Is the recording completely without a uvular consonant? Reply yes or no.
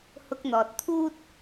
yes